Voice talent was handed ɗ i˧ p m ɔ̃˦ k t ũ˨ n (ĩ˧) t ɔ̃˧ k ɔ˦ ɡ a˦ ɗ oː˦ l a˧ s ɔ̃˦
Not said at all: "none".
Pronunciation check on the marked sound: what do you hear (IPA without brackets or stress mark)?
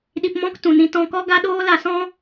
ĩ˧